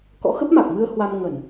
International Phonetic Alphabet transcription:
k ɔ̰˧˥ x ə˦˥ p̚ m a˨˩ k̚ m ɨ˧ ə̯ h w a˧ m ŋ ə˧˩˨ n

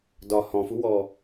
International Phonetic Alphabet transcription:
d ɒ h ɔ̃ f u w ɔ

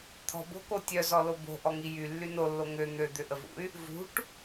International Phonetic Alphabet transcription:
t̪ʰ ɔ̤ b o̤ k o tʲ œ z ɔ l o b o̤ ʔ ɔ ŋ i j y lː y n o lː o ŋ ø n̪ ø d̪ ʏ ʔ ə v ṵ y̯ | v ṳ ʈ

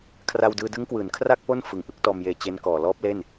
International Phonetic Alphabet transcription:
kʰ r a˧ w d ɯː˧ d ɯ˦˥ ŋ k w ɯː˩˦ n kʰ r a˥˩ k̚ p o˥˩ n f ɯ˨˩ ŋ ʔ ɯ˥˩ k̚ t ɔː˧ m j eː˧ t͡ɕ e˦˥ n k ɔː˨˩ l ɔː˦˥ p̚ l e˥˩ n

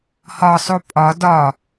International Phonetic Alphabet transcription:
h ɒ sˤ o pʼ ɒ d ɒ

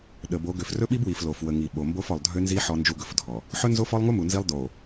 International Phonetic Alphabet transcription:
ɗ ə˨ b o˨˦ ɡ ø˨ f r ɵ˦ ɓ i˦ b w i˨ f l o˨ f w ə˨ ŋ i˨ ɓ o˨ m b o˦ f ɔ˨ lˠ dʱ ø˦ n z i˦ ħ ɔ˦ n d͡ʒ u˦ ɡ ɵ˨ f dʱ ɔ˨ | ħ ɵ˦ n z o˦ f ɔ˦ lˠ ŋ u˦ m u˨ n z i˦ lˠ d o˨

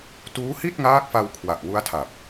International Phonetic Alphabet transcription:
t uː˦˥ h i˥˩ t̚ ŋ aː˦˥ k̚ f a˧ w kʰ w a˨˩ ʔ w u˦˥ a̯ tʰ a˨˩ p̚

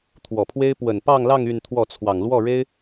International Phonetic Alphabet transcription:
t̪ʰ w ɔ˨˩ pʰ w e˥ ɪ̯ p w ə˨˩ n p ɑ˥˧ ŋ l ɑ˥˧ ŋ y˥˧ n t̪ʰ w ɔ˥˩ t͡sʰ w ɑ˨˩ ŋ l w ɔ˥˩ ɻ e˥ ɪ̯

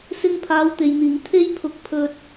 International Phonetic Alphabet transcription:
s ɪ˧ ŋ pʰ aː˨˥ w t̪ e˨ j n̪ iː˨˩ ŋ t̪ʰ e˥ j pʰ ʊ˧ k̚ pʰ ɵ˧ t̚

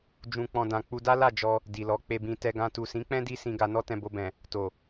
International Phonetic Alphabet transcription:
d͡ʒ ũ˨ k͡p ɔ̃˨ d ã˨ k͡p u˧ d a˦ l a˦˨ d͡ʒ ɔ˧ | d i˨ l ɔ˨˦ k͡p e˧ b ĩ˧ t ɛ˧ ɡ ã˧ t u˨ s ĩ˨˦ k͡p ɛ̃˦ d i˦ s ĩ˧ ɡ a˧ n ɔ˦ t ɛ̃˧ b o˧ b ɛ̃˨ | t o˨

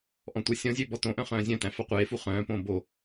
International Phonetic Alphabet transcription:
ʔ ɔ̃ tʷ æ sʲ ɔ̃ zʲ ø b ɔ t õ ʔ œ̃ χ œ̃ː zʲ œ̃ t æ̃ f ɑ qʷ eː f u χ œ̃ː p õː b o

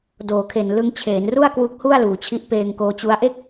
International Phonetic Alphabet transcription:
d oː˩˦ kʰ e˨˩ n l ɯ˧ ŋ t͡ɕʰ eː˩˦ n r u˥˩ a̯ k w u˦˥ k̚ h u˥˩ a̯ l uː˩˦ t͡ɕʰ i˦˥ ʔ p eː˧ ŋ k oː˧ t͡ɕ u˦˥ a̯ ʔ e˥˩ k̚

